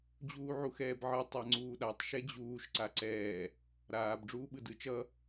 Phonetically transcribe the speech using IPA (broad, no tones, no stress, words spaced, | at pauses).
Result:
d͡ʑuːʕuxɛːbʕɯ tˤaŋ͡ǀuːɗatˤ ʃɛd͡ʑuːʃ ǀaǀɛː | ɾaːb ɖ͡ʐuːɓɯdɯ t͡ʃʌ